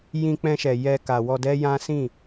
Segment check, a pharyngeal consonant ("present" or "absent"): absent